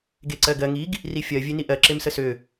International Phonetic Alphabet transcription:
ɡ e ǀ ɜ ɡ ɜ ŋ i ɡ | r i fʲ ɜ vʲ e n i ʔ ɜ ǁ e m s ə s ø

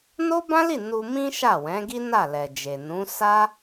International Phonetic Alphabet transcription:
n o˦ b ã˦ l i˦˨ n u˧ m ĩ˦ ʃ a˦˨ w ɛ̃˨˦ ɡ i˦ n a˦˨ l ɛ˨ d͡ʒ e˨ n ũ˨˦ s a˦

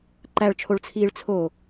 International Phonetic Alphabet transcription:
ǃ æ ɭ t͡ʃʰ o ɭ t͡sʰ iː ɭ t͡sʰ o

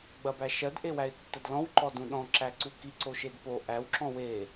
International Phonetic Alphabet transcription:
ɡ͡b ɐ b æ ʃ ɜ d ʔ e w æ ɪ̯ tː ɐ d l ɔ̃ w ǃ ɔ d ũ ɗ ɔ̃ ǁ æ ǀ u k i ǀ o ʃ e d p o ʔ æ w ǁ ɔ̃ w e

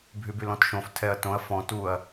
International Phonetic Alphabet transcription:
bʱ y b y l ɔ̃ t ʃ õ f tʰ ɛ ɐ̯ t õ ɐ̯ f ɔ̃ t u ɐ̯

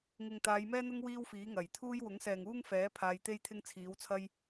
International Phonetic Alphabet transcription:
ŋ ɪ˨ ŋ t̪ aː˨˧ j m ɛː˥ n̪ ʊ˥ ŋ w iː˥ w f iː˨˥ ŋ ɐ˨˩ j t̪ʰ uː˥ j w ʊ˨˥ ŋ s ɛː˨ ŋ uː˥ ŋ f ɛː˨˥ pʰ aː˧ j t̪ e˥ j t̪ʰ ɪ˥ ŋ t͡sʰ iː˨˥ w t͡sʰ ɐ˥ j

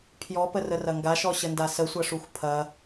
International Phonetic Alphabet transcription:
pʰ j ɔ p ə r ə r ɐ ŋ ɡ a ʃ ɔ ɕ ə n d a s ə sʷ ɐ ʂ u xʷ pʰ ɐ

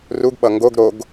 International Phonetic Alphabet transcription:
r u ɡ ɓ ʌ ŋ ɡ o ɡ ɾ o ɡ

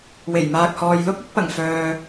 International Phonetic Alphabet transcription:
w e˨˩ j m aː˨ k̚ h ɔː˨ j l ʊ˥ k̚ ɪ˥ k̚ p ɐ˨˩ ŋ f œː˨

